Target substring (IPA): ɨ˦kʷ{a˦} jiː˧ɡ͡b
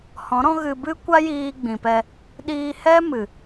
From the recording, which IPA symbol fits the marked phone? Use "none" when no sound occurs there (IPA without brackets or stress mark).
a˦